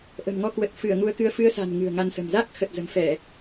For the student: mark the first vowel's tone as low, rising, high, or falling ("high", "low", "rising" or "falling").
low